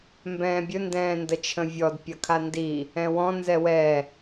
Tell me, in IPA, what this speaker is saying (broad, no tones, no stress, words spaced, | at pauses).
mbɛ̃ːbʲɵ ndɛ̃ːndət͡ʃʰə̃vʲɔd pʲɐkʰandi | ɛ̃wɔ̃ nzɛwɛ